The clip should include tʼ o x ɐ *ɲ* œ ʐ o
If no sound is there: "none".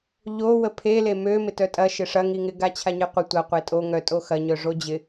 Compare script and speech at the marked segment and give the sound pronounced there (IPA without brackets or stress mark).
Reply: ɲ